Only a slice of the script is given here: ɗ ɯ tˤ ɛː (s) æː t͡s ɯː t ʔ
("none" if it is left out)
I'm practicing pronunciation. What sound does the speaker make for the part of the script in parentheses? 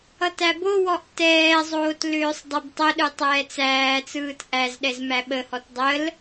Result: t͡s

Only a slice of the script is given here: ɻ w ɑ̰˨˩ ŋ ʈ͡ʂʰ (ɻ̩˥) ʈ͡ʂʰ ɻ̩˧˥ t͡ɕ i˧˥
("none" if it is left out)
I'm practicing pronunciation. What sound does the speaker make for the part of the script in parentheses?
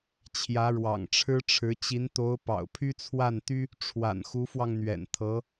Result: ɻ̩˥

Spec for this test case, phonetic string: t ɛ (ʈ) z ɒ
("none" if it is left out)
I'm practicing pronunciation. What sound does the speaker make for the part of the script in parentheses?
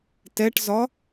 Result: ʈ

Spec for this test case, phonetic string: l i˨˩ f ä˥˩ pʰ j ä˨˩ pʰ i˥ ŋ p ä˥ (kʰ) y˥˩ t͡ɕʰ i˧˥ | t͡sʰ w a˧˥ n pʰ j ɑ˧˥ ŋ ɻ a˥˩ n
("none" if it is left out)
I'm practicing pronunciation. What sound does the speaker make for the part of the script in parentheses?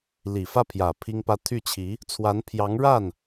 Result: t̪ʰ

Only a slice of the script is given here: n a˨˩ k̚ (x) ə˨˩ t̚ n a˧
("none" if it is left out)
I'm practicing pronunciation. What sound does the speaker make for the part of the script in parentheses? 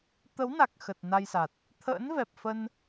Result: x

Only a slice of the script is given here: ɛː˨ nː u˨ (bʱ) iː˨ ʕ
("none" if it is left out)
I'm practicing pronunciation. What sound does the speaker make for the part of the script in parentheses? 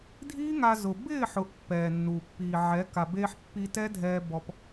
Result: pː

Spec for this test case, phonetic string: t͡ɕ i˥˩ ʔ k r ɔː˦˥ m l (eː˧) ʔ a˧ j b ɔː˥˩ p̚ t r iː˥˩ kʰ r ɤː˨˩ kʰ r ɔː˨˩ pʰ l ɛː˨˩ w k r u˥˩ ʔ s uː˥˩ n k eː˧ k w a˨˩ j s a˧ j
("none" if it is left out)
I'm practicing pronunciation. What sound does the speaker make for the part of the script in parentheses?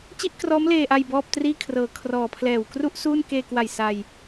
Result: eː˧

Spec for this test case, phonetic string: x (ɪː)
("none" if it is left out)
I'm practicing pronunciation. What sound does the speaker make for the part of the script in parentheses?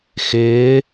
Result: ɪː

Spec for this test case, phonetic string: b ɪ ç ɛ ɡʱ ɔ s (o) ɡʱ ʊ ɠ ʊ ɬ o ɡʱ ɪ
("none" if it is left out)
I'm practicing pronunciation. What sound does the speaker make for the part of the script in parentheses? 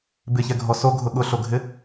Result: o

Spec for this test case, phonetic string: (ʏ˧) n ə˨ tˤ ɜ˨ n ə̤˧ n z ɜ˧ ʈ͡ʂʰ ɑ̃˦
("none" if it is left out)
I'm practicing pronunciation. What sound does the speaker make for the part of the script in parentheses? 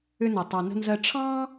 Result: ʏ˧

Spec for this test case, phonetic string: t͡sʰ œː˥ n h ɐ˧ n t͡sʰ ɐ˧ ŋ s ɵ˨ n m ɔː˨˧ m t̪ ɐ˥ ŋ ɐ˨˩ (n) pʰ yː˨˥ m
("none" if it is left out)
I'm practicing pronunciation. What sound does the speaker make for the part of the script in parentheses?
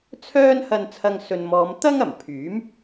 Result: m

